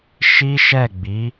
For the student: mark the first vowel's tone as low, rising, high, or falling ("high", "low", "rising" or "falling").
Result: high